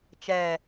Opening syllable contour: low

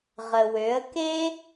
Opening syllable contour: low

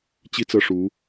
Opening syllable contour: high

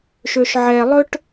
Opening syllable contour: low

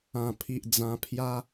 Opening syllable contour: low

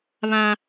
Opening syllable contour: high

